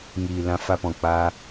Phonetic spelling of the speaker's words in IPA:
ŋiː˨lã˧ fa˧pɔ̃˨k͡paː˧

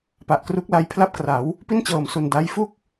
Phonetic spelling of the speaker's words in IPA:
pa˨˩ʔkru˦˥k̚la˧j pʰla˥˩p̚kra˩˦w | pi˥˩nt͡ɕɤː˨˩msu˨˩n da˦˥j fu˥˩k̚

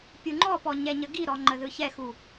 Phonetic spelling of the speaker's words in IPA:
pʲuŋ͡ǃɔpɔ ɲɛɲəɡiɾɔ ŋ͡ǃəðɯçɛxu

